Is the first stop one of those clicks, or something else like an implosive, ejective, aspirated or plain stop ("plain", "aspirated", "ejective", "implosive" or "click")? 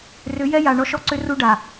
click